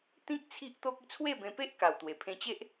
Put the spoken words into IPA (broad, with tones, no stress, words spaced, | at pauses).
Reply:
t̪ĩ˦k̚ t͡sʰi˦ʔt̪o˦k̚ i˥˧t͡sʰwe˥˧bẽ˧pe˦ʔ ka˨˩wt̪we˨˩ pʰẽ˧t͡ɕe˦ʔ